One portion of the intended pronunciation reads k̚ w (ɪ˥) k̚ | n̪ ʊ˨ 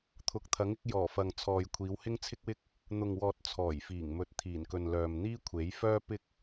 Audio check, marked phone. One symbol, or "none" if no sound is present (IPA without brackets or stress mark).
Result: ɪ˥